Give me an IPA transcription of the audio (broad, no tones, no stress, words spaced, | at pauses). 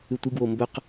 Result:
ʉtʷɨɡwo mbɵq